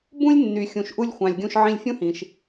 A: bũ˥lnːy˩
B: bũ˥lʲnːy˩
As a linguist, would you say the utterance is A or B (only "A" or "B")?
B